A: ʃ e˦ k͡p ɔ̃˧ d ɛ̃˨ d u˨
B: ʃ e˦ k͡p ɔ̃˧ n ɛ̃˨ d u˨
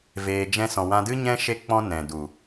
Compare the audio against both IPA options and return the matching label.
B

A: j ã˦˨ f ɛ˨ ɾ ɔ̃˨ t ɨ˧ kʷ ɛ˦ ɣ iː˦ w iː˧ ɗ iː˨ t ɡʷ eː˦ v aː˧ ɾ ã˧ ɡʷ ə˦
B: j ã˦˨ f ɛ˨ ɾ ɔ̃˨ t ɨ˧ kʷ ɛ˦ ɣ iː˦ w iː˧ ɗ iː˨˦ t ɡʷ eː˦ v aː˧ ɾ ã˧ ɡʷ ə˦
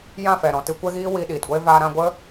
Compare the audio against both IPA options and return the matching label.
A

